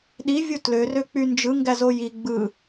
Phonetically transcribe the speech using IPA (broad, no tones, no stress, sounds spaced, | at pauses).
ɗ i vʲ u t l ø r ø k͡p y n d͡ʒ ɯ ŋ ɡ æ z o j i ɡ͡b ɯ